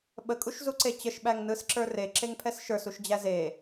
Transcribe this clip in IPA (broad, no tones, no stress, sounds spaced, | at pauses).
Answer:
ɓ ə kʼ u ʃ z u ǀ e t͡ɕ ə ʃ ɓ æ ŋ n ɯ s ǁ ə˞ r e ǁ e ŋ pʰ ɛ s ʃ ə˞ s u ʃ d͡ʑ æ z e